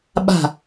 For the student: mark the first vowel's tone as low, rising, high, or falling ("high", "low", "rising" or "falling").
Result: falling